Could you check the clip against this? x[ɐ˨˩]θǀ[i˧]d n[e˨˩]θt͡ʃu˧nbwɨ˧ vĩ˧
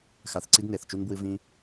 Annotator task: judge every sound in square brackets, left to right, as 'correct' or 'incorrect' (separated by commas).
incorrect, correct, correct